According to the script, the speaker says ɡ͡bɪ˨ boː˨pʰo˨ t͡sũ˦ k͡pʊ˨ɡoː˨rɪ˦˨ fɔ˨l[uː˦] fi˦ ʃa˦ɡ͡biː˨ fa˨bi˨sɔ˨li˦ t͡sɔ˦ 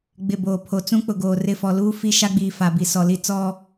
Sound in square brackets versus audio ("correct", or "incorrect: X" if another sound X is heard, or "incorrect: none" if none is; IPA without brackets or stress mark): correct